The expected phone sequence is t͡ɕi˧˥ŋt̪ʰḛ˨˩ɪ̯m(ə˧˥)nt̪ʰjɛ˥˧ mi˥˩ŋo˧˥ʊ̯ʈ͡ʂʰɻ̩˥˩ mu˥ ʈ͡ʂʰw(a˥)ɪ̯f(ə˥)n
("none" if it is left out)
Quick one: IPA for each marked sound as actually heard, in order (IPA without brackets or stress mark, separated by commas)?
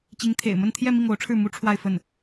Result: ə˥˧, a˥˧, ə˥˩